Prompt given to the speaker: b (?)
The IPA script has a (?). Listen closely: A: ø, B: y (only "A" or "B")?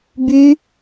B